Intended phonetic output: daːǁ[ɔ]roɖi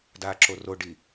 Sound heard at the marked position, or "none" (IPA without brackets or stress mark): o